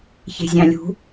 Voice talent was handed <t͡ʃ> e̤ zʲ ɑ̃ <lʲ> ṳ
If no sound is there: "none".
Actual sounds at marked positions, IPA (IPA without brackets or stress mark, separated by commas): ç, lʲ